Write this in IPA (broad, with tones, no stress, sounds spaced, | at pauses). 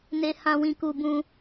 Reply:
n e˧ h ã˧ w ĩ˧ k u˧ b ũ˧